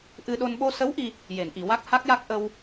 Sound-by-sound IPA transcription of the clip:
ʔ ɨ˧ ɗ o˧ n ɓ o˧ s ə˧˥ w ʔ i˧ | j e˨˩˨ n ʔ i˨˩˨ w a˦˥ k̚ h a˦˥ k̚ j a˦˥ k̚ ʔ ə˧ w

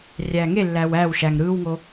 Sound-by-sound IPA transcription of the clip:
rʲ æː ŋ e lː æː w æː w ʃ æ ŋ ɾ ɯː w ŋ o

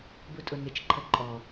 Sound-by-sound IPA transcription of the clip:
b u tʼ ʊ n ɪ t͡ʃ ǃʰ ə ǃʼ ɔ

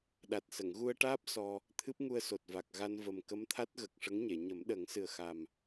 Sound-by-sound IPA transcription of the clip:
ɗ a˨˩ t̚ s ə˨˩˨ ŋ ɣ u˧ ə̯ ʈ aː˦˥ p̚ s ɔ˧ | t̪ʰ ɨ˦˥ p̚ ŋ u˧ ə̯ s o˨˩ t̚ v a˨˩ k̚ ɣ a˧ n v ə˨˩ m k ə˧˥ m t̪ʰ a˦˥ t̚ ɣ ə˨˩ k̚ ʂ ə˧˥ ŋ ɲ e˨˩˨ ɲ ə˨˩˦ m ɗ ə˨˩˦ ŋ s ɨ˨˩ ə̯ x a˨˩ m

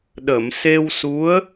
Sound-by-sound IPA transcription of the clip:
ɗ ə˨˩˨ m s e˧ w s u˧˥ ə̯

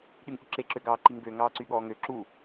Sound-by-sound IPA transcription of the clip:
ɗ y ŋ ʔ y ǁ e ǁ ø ɡ ɑː ǃ i ŋ b ø ŋ ɑː ǀ y ɠ ɔː ŋ ø ǁ u

